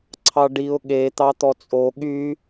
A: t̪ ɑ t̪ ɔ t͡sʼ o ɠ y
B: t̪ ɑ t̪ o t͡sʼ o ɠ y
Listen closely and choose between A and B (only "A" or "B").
A